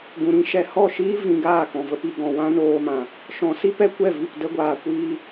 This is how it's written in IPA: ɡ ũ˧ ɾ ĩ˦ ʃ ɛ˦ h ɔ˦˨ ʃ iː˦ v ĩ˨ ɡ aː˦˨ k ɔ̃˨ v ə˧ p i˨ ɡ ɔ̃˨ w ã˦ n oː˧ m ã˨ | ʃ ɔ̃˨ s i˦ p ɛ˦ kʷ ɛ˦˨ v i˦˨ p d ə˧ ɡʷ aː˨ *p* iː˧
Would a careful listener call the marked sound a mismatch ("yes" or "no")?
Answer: yes